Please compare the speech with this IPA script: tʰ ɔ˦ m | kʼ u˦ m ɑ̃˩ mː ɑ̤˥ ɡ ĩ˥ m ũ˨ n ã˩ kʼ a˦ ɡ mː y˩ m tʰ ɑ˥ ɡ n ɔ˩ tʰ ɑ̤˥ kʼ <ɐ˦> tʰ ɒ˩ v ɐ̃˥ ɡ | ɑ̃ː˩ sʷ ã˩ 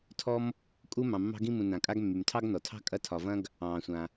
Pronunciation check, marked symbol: correct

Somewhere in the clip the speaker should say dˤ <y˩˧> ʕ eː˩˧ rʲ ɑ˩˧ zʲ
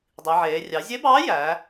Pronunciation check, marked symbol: incorrect: i˩˧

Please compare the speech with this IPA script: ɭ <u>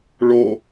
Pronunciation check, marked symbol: incorrect: o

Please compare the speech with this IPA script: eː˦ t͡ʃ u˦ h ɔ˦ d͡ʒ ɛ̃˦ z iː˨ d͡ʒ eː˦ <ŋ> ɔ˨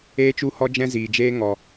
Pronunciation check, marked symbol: correct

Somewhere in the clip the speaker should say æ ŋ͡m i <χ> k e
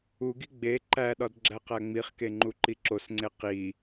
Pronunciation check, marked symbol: correct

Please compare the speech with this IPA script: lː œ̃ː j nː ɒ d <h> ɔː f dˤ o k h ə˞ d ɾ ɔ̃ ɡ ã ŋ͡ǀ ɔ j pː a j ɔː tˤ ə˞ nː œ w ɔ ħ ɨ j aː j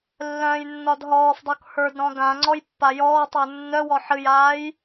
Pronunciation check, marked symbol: incorrect: ɦ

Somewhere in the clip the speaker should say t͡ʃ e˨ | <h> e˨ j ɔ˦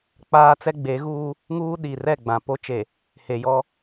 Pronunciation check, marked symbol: correct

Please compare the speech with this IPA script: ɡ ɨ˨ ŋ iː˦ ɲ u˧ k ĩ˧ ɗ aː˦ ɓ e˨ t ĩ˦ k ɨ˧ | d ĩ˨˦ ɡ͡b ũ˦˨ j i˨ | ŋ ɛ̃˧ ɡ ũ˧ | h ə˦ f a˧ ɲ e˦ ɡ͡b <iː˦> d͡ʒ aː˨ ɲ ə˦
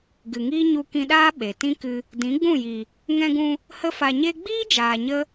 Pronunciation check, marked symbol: correct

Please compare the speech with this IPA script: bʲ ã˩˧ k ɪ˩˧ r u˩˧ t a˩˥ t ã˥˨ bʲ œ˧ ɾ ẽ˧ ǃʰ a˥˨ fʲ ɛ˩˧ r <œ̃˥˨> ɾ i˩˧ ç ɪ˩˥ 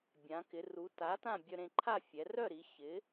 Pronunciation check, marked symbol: incorrect: œ˥˨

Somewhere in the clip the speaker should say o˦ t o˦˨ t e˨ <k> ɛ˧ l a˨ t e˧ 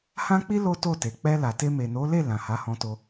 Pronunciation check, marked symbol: incorrect: k͡p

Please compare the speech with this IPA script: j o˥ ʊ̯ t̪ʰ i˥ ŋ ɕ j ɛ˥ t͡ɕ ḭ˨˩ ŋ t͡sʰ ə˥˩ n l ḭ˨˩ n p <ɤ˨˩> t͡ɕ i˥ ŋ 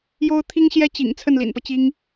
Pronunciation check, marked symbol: incorrect: ɤ˦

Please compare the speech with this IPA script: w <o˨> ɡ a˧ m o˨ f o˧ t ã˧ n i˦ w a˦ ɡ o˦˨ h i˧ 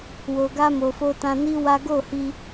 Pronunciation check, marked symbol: correct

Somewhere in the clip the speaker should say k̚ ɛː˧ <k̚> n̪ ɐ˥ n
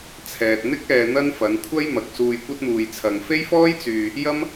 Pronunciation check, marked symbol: incorrect: none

